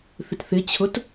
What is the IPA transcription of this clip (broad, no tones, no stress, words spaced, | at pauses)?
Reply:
θɪtθɪt͡ɕʰʊt